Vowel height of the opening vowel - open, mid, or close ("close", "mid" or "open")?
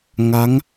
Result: open